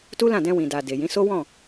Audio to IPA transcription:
t u˦ l ã˦˨ d ɛ̃˧ w ĩ˨ d a˨ d e˨ j ĩ˨˦ s o˦ w ɔ̃˦˨

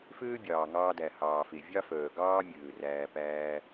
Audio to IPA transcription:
f øː˦ bʲ ɑː˨ ŋ ɑː˧ d æ˨ h ɑː˨ f e˨ vʲ ɑ˦ f œː˨ ɡ ɑː˦ mʲ øː˨ r æː˧ p æː˧

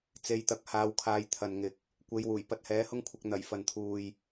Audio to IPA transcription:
t͡s e˨ j t̪ ɐ˧ k̚ h aː˧ w kʰ aː˧ j t̪ʰ ɐ˨ n ŋ ɪ˨ k̚ | kʷ e˨˧ j w uː˨˩ j p ɐ˧ t̚ h ɛː˨˥ h ʊ˥ ŋ kʷʰ ɐ˧ k̚ n̪ ɐ˨˩ j f ɐ˨ n t̪ʰ uː˨ j

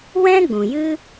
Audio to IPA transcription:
w ɛ̃˦ ɡ͡b ũ˨ j ɨ˦

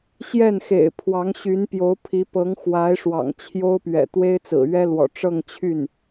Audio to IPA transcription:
ɕ j ɛ˥˩ n x ḛ˨˩ ɪ̯ pʰ w ɑ˧˥ ŋ ɕ y˧˥ n p j o˧˥ ʊ̯ pʰ i˧˥ p ɤ˧˥ ŋ x w a˧˥ ɪ̯ ʂ w ɑ̰˨˩ ŋ t͡ɕʰ j o˥ ʊ̯ p ɥ ɛ̰˨˩ t̪ w e˥ ɪ̯ t͡s ɹ̩˨˩ ɥ ɛ˥ l w ɔ̰˨˩ ʈ͡ʂ ɤ˥˧ ŋ t͡ɕʰ y˥˩ n

